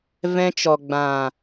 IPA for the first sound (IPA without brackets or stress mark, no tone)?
v